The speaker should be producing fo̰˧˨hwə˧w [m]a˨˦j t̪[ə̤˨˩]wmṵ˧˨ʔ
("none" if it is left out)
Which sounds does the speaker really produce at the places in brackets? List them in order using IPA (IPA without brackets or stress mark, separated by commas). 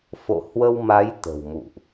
m, ə̤˨˩